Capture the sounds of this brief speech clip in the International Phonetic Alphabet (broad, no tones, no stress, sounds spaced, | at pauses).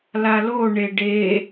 l a l o ɳ e ɖ e